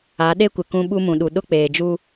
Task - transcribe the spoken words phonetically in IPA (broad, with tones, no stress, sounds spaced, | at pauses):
a˨˦ ɗ e˦ kʷ ɪ˨ k ũ˦ ɓ u˦ m ũ˨ ɗ u˨ ɗ ʊ˦ k͡p eː˨ d͡ʒ u˦